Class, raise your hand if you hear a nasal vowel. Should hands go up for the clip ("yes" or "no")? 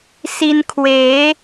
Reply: no